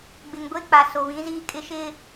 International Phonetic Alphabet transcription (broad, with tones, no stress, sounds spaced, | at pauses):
ɡ͡b ɪ˨ ŋ ɡʷ e˦ k͡p a˨ s o˨ β ĩ˨˦ z iː˦ kʼ ɪ˦ ʃ ɪ˦